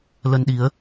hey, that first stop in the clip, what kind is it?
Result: implosive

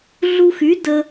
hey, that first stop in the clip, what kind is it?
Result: plain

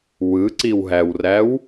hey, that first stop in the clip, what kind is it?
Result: click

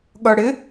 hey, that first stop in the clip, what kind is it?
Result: implosive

